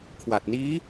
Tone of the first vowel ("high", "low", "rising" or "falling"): low